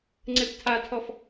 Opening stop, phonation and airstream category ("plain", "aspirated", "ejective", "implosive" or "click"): click